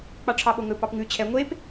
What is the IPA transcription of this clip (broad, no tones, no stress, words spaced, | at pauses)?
k͡pɑʈ͡ʂʰɑɓoŋɵ pɑpŋʉ t͡ɕʰɛ ŋʷep